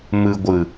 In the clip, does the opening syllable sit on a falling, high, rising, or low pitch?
low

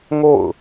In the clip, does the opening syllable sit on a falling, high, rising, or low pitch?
falling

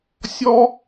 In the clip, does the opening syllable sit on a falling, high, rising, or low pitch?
high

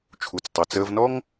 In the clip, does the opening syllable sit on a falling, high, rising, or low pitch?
low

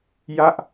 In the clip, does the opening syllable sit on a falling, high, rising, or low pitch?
falling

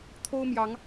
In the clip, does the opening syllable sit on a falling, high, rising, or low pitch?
high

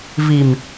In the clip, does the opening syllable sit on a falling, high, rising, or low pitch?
low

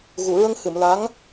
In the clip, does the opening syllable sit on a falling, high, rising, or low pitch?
low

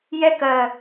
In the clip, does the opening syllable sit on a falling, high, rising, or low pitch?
high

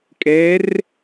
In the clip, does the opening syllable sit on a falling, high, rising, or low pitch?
rising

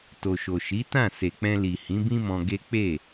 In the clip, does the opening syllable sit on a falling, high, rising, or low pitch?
low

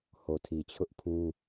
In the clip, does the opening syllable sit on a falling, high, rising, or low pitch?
low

